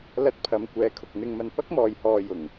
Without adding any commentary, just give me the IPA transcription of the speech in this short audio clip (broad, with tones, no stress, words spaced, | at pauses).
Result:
lɐ˧t̚pʰɐ˨m kʷɛː˨˧kʰʊ˨k̚ n̪ɪ˨ŋmɐ˨n pɐ˥k̚mɔː˨jhɔː˨ jʊ˨˩ŋ